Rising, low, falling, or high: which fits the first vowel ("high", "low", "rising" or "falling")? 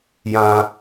high